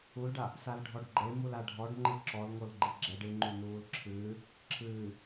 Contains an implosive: no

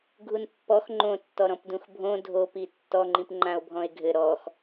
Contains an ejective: no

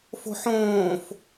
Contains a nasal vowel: yes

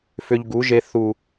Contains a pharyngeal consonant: no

